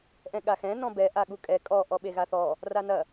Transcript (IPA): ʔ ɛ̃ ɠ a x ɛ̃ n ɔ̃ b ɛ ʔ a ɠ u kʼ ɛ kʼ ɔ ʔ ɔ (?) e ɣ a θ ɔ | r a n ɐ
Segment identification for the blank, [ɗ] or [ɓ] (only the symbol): ɓ